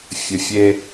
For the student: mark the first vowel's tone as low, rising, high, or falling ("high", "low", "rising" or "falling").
low